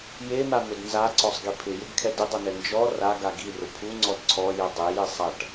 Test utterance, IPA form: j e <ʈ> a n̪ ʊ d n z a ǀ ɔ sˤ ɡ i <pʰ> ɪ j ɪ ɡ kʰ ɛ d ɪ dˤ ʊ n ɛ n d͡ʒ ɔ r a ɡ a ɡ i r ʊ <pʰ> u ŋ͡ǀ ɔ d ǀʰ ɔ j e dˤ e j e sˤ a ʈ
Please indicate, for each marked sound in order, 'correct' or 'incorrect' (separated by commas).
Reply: incorrect, correct, correct